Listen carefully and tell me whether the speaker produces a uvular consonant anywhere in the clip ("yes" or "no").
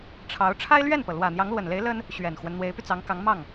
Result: no